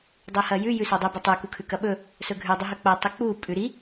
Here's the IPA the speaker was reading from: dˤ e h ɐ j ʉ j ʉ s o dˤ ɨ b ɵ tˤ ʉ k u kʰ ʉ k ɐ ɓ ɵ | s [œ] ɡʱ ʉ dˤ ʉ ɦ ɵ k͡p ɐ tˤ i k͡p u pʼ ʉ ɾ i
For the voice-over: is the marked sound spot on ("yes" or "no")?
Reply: no